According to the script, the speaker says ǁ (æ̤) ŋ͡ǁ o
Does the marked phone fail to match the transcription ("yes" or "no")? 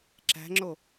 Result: no